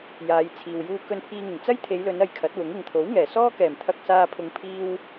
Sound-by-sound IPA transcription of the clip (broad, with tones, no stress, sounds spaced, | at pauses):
j aː˨˧ j t͡sʰ iː˨ w j uː˧ k ɵ˧ n pʰ iː˧ ŋ ɪ˨˩ ŋ t͡s ɐ˥ j t̪ʰ e˨˧ j l ɵ˨˧ n ɐ˧ j kʰ ɐ˨˥ t̚ w ʊ˨˥ ŋ ɪ˨ ŋ t̪ʰ o˨˥ w ŋ ɛː˨˩ s ɔː˥ k ɛː˨˩ m t̪ʰ ɐ˧ k̚ s aː˧ pʰ ʊ˨˧ ŋ pʰ iː˥ w